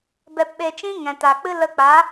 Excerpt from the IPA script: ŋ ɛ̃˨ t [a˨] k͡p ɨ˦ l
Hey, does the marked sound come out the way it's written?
yes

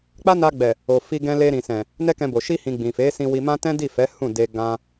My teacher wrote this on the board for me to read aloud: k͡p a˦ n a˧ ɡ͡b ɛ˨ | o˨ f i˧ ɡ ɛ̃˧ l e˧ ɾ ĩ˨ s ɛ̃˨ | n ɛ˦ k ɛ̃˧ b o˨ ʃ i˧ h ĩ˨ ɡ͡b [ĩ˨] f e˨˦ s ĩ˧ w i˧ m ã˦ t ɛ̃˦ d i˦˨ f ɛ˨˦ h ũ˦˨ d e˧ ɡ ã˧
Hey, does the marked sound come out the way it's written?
yes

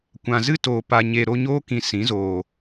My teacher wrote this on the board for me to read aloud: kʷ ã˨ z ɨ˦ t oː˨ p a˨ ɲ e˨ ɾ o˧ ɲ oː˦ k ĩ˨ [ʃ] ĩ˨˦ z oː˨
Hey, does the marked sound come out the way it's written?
no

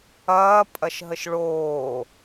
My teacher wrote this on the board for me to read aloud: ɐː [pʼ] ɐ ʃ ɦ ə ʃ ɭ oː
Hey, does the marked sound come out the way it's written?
yes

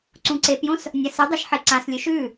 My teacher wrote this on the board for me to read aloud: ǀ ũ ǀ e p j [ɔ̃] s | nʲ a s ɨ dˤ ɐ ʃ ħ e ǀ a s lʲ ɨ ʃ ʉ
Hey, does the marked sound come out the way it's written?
no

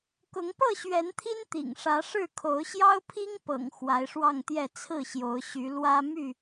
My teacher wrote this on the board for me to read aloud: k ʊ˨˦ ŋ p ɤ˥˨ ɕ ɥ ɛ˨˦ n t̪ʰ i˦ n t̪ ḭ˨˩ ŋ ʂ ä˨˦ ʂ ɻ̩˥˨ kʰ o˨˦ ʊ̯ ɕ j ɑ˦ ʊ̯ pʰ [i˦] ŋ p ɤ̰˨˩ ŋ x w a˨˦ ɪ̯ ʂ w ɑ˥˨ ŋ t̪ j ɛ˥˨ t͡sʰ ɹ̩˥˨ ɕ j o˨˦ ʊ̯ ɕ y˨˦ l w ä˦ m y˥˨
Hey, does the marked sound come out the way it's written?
yes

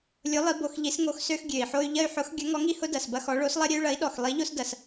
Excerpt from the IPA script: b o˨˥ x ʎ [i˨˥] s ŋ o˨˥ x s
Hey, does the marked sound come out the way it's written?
yes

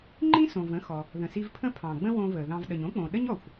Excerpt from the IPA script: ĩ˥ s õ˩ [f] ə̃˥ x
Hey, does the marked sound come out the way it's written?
no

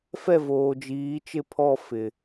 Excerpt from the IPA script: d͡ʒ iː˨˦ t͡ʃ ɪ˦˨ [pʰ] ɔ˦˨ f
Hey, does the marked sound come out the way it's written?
yes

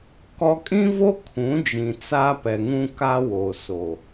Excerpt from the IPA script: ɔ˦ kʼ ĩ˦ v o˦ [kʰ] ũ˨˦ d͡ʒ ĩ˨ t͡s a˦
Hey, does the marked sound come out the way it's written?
yes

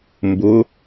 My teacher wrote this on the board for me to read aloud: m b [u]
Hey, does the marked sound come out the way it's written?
no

